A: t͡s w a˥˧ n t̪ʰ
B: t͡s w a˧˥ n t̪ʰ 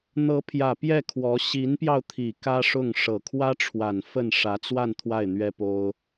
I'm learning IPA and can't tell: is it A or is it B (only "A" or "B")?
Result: A